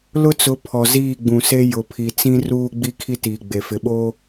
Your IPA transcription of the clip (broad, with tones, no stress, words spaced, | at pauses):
lʊ˦t͡sʊ˨˦pʰɔ˨ ziː˦˨ɡ͡bũ˨se˦ jʊ˨pʰi˨ t͡sĩ˦ruː˦ ɡ͡bi˦kʰi˦tiː˨ ɡ͡be˨fɪ˨ɓoː˦